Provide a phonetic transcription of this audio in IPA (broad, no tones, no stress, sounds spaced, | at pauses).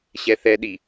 ɕ ɛ θ ɛ ɗ i